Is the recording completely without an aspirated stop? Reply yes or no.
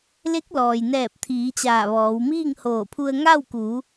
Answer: no